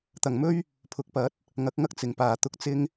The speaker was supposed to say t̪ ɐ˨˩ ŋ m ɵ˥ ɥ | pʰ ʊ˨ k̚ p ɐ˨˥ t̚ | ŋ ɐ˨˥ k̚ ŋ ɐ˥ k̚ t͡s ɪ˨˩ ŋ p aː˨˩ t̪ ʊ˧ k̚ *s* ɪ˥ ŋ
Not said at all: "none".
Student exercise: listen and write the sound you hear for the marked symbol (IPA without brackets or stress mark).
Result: t͡s